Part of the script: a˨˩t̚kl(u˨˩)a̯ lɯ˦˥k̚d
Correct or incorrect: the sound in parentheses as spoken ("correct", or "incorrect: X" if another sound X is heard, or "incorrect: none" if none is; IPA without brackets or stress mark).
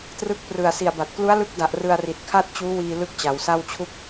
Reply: incorrect: u˦˥